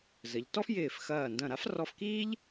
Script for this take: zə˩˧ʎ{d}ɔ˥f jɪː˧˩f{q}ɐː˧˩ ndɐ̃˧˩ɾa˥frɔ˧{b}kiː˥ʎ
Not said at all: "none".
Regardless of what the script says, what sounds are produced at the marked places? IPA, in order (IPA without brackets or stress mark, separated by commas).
t, x, f